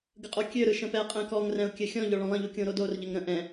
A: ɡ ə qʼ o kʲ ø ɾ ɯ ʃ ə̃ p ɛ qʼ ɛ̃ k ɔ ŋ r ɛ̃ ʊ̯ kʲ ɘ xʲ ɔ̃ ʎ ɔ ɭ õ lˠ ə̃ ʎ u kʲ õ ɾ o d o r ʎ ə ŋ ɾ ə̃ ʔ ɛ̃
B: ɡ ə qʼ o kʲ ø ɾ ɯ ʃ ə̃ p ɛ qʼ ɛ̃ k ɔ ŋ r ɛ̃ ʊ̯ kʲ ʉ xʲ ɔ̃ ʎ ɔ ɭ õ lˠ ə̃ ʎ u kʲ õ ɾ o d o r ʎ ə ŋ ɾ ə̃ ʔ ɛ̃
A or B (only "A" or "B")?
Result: A